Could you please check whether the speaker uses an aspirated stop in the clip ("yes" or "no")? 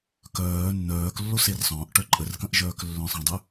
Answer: no